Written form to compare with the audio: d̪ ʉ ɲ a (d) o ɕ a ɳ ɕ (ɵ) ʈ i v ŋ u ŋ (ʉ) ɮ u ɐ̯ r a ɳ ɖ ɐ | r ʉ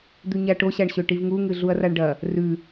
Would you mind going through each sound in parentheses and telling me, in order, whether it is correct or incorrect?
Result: incorrect, correct, incorrect

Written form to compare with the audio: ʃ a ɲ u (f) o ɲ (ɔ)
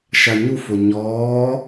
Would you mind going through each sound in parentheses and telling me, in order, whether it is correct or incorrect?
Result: correct, incorrect

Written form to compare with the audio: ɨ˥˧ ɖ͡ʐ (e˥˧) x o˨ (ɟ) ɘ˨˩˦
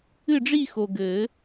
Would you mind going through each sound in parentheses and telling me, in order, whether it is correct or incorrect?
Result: incorrect, incorrect

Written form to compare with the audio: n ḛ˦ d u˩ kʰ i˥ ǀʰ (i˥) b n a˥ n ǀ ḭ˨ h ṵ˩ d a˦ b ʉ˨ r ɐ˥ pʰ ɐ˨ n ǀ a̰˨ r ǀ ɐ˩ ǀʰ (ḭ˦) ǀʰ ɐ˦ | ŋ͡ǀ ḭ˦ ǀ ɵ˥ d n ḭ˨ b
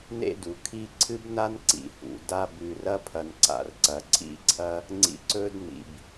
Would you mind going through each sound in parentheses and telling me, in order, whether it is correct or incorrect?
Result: incorrect, correct

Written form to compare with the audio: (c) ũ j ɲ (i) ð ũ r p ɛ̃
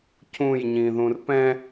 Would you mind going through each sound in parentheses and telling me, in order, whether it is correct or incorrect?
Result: correct, incorrect

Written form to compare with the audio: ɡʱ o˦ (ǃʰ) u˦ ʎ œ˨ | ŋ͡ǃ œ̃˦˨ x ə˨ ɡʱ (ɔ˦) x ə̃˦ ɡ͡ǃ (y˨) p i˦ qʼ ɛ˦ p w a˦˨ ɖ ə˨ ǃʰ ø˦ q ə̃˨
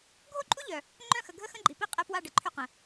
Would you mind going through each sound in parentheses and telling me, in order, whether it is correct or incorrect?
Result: incorrect, incorrect, incorrect

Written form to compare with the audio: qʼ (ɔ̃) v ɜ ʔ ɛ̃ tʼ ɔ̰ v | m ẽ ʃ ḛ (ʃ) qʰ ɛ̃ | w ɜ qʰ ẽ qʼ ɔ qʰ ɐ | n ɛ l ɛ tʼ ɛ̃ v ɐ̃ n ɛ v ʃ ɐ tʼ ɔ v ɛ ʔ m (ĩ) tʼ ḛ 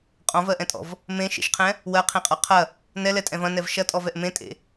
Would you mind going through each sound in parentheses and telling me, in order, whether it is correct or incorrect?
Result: correct, correct, incorrect

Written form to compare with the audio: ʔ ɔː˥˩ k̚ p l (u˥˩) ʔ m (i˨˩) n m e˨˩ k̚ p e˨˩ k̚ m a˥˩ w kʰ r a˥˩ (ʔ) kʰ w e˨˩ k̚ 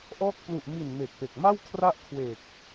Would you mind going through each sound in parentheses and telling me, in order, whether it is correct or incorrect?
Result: incorrect, correct, correct

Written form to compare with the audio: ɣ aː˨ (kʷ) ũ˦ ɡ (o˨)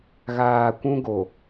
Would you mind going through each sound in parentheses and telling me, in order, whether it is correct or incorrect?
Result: correct, correct

